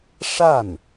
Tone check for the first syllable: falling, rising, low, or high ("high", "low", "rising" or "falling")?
falling